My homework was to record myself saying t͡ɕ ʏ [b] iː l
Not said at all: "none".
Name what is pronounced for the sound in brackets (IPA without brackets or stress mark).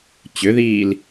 ð